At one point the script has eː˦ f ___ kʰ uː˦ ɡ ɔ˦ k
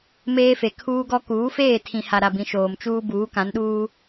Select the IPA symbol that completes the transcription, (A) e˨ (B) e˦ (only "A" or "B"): A